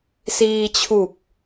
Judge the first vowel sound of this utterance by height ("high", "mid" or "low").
high